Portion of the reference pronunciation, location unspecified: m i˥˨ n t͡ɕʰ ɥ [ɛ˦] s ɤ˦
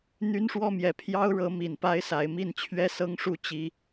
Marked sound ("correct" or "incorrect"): correct